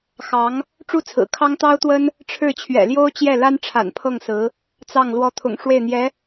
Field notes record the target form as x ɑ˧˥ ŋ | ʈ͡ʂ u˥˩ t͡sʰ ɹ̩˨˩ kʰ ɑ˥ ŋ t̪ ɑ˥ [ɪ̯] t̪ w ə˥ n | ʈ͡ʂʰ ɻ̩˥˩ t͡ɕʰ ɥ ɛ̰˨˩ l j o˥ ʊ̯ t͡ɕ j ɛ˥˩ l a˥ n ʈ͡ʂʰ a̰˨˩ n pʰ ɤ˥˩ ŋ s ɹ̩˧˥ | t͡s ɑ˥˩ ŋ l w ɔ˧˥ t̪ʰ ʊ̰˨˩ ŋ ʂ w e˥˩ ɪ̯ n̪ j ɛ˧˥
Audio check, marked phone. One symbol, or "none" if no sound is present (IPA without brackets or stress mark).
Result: ʊ̯